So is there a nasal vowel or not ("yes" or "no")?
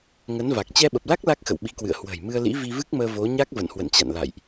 no